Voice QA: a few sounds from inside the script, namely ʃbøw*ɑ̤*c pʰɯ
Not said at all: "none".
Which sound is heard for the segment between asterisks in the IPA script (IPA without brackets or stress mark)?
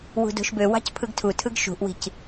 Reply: ɑ̤